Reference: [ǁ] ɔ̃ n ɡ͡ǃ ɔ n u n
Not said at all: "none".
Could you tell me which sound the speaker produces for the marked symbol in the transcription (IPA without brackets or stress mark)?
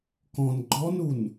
k